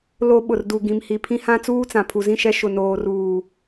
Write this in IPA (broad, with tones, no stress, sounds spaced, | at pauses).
l o˦ ɓ ʊ˨ r d u˨ ɡ ĩ˨ m h i˨ pʰ ĩ˦ h ã˦ t͡s uː˦ t͡s ã˨ pʰ u˨ z ĩ˦ ʃ ɛ˦ ʃ ʊ˨ n oː˨ r uː˨